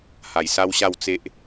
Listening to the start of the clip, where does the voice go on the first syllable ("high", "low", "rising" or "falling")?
low